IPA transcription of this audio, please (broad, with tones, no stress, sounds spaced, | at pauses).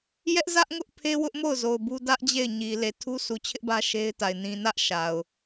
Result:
j ɛ˦ ʔ z ä˦ ʔ ŋ ʊ˦ ʔ pʰ e˦ w ʊ˦ ʔ m o˦˨ ʊ̯ z o˨ ʊ̯ b u˦ d ä˦ ʔ d͡ʑ e˦˨ ɪ̯ ɲ i˨ l e˨ tʰ u˦ s u˨ t͡ɕʰ ɪ˦ ʔ b ä˦ ʃ e˦ ɪ̯ t a˨ ɪ̯ n ĩ˨ n ä˦ ʔ ʃ a˨ ʊ̯